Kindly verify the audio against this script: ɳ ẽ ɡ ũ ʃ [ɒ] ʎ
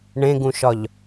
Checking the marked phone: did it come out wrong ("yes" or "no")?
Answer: no